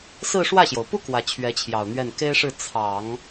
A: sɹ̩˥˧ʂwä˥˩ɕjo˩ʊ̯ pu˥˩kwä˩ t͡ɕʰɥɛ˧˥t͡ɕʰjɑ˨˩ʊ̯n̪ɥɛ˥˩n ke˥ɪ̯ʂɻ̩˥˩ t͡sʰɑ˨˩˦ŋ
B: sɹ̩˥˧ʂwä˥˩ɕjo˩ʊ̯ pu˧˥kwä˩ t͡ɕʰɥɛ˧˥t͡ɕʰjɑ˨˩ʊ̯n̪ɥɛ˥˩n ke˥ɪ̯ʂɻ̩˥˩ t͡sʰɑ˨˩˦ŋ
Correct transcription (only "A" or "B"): A